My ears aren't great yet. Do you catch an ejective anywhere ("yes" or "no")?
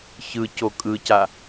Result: yes